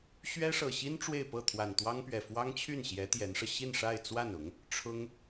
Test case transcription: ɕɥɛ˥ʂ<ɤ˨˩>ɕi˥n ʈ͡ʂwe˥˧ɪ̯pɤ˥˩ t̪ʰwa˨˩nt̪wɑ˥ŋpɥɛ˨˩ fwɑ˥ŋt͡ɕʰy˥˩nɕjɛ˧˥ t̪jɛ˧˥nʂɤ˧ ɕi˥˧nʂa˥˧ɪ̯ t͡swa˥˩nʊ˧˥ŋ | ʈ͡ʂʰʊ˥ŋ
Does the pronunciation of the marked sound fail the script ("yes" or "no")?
no